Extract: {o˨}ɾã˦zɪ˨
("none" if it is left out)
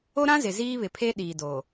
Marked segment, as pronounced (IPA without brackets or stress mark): o˦